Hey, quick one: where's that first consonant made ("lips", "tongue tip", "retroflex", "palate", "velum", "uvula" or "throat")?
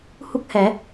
throat